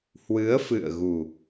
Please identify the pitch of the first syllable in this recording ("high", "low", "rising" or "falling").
rising